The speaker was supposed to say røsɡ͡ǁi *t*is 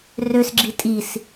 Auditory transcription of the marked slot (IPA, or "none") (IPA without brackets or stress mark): tʼ